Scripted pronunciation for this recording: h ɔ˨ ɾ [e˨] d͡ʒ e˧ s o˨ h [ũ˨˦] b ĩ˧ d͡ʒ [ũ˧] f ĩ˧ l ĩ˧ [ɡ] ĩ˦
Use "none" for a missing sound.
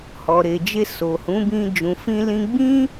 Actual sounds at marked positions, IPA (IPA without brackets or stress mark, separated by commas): e˨, ũ˨˦, ũ˨, ɡ͡b